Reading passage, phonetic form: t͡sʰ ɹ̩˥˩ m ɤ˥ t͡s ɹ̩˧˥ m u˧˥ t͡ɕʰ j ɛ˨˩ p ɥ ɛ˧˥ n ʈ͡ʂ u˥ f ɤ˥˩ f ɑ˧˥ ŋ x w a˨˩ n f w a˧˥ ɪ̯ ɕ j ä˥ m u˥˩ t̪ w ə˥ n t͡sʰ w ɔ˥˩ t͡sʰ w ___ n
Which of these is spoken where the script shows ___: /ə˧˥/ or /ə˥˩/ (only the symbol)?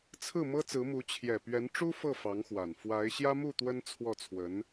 ə˧˥